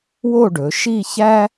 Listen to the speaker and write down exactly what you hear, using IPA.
wo˥˧ɖɵ˩˧ʃi˥˧ çæ˥

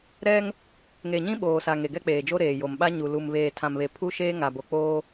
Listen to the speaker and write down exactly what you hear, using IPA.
ɾɛ˦ŋ | ŋe˨ɲĩ˦ ɓoː˨sa˨ ŋe˨ɡɛ˦k͡peː˨d͡ʒo˦ ɾeː˨jo˨mɓa˦ ɲu˨lu˨m βeː˨ tʰã˨mβe˨pʰu˦ʃeː˦ ŋa˨bo˨k͡poː˦

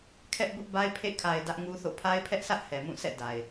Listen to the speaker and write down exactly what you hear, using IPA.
kʰɛ˦ʔbʊ˦ʔba˦ɪ̯pʰḛ˦˨ kʰa˨ɪ̯ dä˦ʔŋu˦θo̰˦˨ pʰa˦ɪ̯pʰɛ˦ʔsʰä˦ʔ hɛ˨mũ˦˨sʰɛ̰˦˨ da˨ɪ̯

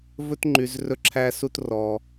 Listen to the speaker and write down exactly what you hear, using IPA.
vɵ˥tŋ͡ǃy˧z rɵ˥ǁʰæ˥su˥t rɔ˧

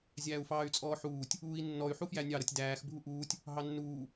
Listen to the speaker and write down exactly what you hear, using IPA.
zʲæːu̯fɑːy̯t͡sʼɔːħuːtʲ | uːi̯nːɔy̯ ħufjænʲɑ ɾʌtʲdæːx bʱuʔuːtʲ | ɦɑnːuː

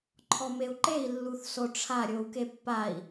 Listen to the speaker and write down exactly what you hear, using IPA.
ǃʰɔmeu̯ǃei̯ lːuθsoʈ͡ʂʰa ɾʲou̯kepːai̯

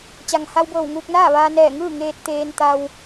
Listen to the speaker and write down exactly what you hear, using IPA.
t͡ɕa˩ŋ ha˧wbɤː˧˩w ŋuː˧k̚naː˥˨ʋaː˧ nɛː˧˩ŋɯː˥˨ŋeː˧t̚ t̪eː˧nt̪a˧w

